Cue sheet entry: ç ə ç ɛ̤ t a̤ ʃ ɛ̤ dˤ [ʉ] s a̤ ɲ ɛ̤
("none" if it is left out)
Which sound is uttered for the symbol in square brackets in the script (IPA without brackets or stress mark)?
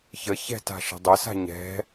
ə